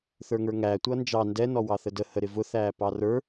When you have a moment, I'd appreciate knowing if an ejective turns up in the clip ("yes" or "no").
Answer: no